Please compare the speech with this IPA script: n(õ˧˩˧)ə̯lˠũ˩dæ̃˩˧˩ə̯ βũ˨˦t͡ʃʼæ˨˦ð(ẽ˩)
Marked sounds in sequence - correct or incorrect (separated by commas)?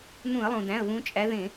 incorrect, incorrect